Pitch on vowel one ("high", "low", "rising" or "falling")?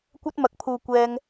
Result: high